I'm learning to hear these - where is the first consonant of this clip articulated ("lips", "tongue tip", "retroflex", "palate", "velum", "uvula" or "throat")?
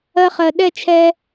uvula